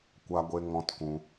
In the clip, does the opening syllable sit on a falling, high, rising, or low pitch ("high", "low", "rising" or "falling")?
high